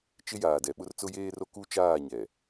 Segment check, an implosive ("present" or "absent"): present